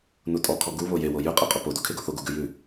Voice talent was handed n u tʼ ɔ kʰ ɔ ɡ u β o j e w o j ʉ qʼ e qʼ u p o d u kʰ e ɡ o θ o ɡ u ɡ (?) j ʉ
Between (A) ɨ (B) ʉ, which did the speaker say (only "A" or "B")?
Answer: B